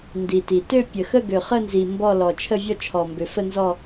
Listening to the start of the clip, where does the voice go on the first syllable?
low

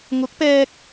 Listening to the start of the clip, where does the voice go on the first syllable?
rising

